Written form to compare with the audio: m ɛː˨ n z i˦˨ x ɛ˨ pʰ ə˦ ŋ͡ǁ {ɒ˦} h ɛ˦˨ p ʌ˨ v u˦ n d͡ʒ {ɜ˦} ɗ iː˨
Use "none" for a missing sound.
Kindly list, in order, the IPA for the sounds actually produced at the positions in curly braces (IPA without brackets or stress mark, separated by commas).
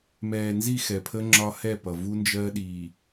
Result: ɒ˦, ɜ˦